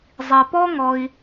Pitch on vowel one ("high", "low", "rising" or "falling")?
low